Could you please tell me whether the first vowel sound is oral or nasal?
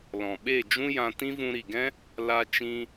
nasal